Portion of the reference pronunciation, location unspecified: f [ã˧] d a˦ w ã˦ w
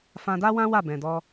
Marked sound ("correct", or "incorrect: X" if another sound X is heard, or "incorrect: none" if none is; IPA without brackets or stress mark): correct